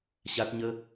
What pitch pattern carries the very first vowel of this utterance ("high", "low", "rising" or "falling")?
high